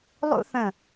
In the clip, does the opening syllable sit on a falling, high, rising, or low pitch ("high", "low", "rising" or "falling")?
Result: high